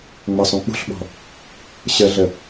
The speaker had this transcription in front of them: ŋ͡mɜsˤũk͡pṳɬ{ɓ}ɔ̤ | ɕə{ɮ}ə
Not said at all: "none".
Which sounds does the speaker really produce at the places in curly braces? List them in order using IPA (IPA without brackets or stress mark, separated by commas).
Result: ɓ, ɮ